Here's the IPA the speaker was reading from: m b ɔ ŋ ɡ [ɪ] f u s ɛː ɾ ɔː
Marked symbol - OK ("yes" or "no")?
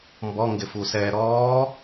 yes